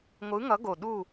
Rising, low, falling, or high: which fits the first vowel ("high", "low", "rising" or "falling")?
rising